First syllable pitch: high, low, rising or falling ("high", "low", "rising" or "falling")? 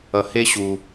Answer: low